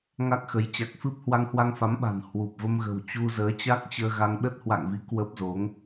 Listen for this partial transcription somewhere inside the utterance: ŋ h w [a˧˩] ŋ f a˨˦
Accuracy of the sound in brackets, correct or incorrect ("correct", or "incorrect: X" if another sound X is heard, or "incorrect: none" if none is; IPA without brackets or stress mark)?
incorrect: a˧